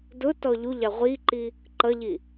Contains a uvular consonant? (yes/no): yes